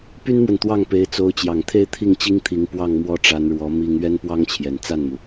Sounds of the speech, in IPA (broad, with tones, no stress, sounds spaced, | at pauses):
p y˥ n m w ə˨ n t̪ w ɑ˥˩ ŋ p e˧˥ ɪ̯ t͡s o˧˥ ʊ̯ t͡ɕ j ɑ˨˩ ŋ t̪ʰ e˥˧ ɪ̯ t̪ʰ i˥˩ ŋ t͡ɕ i˥ ŋ t̪ʰ i˧˥ ŋ p w ɑ˥˧ ŋ m w ɔ˥˩ ʈ͡ʂ a˧˥ n ɻ w ɔ˧˥ m i˥ ŋ ɥ ɛ˥ n p w ɑ˥ ŋ t͡ɕʰ j ɛ˨˩ n t͡s a˥˩ n m u˩